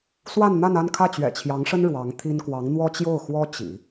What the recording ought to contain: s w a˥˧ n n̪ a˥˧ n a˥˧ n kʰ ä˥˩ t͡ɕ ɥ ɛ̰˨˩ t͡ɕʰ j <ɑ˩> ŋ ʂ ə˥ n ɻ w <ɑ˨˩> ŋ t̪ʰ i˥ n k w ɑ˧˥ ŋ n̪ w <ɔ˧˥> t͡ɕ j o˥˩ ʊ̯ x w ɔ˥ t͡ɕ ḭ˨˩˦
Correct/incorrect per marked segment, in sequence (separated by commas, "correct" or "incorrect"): incorrect, incorrect, incorrect